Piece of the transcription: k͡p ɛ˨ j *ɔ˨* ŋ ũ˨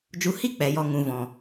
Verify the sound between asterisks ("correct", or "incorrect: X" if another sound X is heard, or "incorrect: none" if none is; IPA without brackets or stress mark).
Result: correct